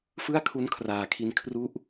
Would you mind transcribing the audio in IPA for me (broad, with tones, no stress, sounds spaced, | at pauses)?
f ɯ˥˩ a̯ kʰ u˦˥ n kʰ r aː˨˩ kʰ i˧ n kʰ r u˦˥ ʔ